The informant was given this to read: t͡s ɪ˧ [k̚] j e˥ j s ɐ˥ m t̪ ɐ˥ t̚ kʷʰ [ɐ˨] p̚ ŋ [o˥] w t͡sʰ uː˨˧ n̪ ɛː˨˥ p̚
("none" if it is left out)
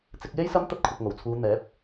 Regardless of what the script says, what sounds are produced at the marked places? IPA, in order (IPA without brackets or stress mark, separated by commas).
k̚, ɐ˨, o˨˩